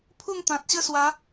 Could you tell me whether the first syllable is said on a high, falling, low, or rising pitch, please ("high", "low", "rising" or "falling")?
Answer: falling